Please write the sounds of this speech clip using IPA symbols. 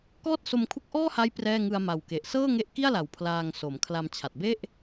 k ɔː˥˩ t̚ s o˧ m kʰ u˦˥ k̚ ʔ ɔː˥˩ h a˦˥ j p r ɛː˥˩ ŋ ɯ˧ a̯ m a˨˩ w k e˨˩ ʔ s ɤː˥˩ ŋ e˦˥ ʔ k i˥˩ a̯ l a˨˩ w pʰ l aː˧ ŋ s o˩˦ m kʰ l a˧ m t͡ɕʰ a˨˩ t̚ b e˥˩ ʔ

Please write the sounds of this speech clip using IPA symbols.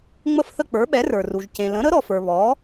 ŋ͡m ə˥˧ f θ ə˥˧ k͡p ə˞˨˥ ɓ ɛ˨˥ r ə˞˨ r u˨ ʒ c ẽ˨ l ə̃˨˥ ɾ ə˨˥ ɾ ɔ˨ f ə˞˨ β ɔ˨˥

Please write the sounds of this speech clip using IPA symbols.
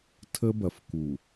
tʰ ə˦ b ɐ˨ f k u˨

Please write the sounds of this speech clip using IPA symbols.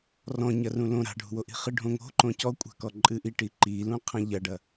r ɔ̃ ɲ ɐ r ũ l õ ɾ a̤ ɖʱ ṳ w o ʔ i̤ χ ɨ ɖʱ õ ŋ o̤ ǃ õ c ɔ kʷʼ a̤ k ɔ ǃʼ ɨ ʔ i ʈ i ǃ i l ũ qʰ ɐ̃ ʎ ɐ ɖ ɐ

